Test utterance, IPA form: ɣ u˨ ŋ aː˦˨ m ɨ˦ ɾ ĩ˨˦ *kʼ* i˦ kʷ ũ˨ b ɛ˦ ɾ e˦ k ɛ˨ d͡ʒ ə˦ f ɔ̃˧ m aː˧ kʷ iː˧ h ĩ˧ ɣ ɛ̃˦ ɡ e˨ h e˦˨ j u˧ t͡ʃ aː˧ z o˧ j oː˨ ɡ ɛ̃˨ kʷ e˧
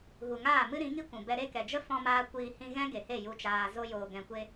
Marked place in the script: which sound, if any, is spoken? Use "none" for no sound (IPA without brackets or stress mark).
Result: ŋ